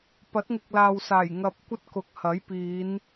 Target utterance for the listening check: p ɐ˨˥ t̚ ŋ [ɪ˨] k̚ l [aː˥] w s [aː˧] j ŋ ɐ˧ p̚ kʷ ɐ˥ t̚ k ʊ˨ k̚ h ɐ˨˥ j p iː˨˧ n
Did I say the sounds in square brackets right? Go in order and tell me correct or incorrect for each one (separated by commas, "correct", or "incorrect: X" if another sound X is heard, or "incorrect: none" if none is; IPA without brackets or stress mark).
correct, incorrect: aː˨, incorrect: aː˨˩